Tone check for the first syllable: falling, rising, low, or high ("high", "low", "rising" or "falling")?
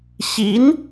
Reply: rising